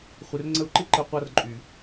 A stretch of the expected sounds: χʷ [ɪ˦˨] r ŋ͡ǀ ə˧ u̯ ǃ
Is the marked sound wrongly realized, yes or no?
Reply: yes